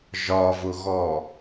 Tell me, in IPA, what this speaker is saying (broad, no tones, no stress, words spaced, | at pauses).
ʒɒvʊɣɔ